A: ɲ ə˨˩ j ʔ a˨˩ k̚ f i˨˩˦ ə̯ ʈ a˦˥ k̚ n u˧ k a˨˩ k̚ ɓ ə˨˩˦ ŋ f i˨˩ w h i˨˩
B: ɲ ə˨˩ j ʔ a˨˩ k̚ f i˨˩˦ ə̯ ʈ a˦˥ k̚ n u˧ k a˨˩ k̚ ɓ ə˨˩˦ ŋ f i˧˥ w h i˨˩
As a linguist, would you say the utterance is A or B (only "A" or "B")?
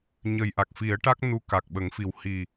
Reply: A